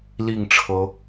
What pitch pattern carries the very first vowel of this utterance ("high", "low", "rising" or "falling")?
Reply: falling